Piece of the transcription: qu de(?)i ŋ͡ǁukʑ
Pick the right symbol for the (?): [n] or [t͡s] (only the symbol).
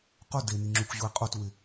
n